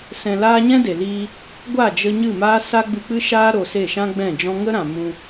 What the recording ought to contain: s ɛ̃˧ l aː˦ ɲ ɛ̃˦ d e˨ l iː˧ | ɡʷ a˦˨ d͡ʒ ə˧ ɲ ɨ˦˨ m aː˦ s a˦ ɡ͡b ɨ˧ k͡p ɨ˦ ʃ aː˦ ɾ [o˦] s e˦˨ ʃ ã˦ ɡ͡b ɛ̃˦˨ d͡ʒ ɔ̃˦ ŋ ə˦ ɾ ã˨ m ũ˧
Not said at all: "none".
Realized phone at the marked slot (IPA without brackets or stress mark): o˧